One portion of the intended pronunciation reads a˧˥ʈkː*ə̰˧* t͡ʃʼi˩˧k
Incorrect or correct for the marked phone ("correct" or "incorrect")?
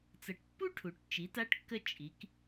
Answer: incorrect